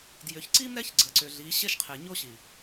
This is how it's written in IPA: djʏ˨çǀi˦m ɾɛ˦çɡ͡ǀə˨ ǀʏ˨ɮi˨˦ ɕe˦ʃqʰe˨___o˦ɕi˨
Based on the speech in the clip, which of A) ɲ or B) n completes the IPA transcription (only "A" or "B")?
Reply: A